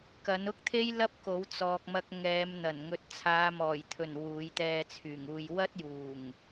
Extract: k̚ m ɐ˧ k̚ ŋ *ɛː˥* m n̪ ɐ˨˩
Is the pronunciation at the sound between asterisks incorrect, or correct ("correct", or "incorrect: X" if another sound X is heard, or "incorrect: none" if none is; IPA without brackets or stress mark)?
incorrect: ɛː˨˧